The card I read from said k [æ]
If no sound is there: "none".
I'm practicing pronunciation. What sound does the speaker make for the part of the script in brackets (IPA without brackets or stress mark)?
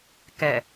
ɛ